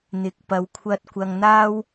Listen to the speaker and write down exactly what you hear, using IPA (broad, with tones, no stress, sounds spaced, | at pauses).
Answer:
n̪ ɪ˨˥ k̚ p ɐ˨˧ w kʷʰ ɐ˧ t̚ kʷ ɐ˧ ŋ n̪ aː˥ w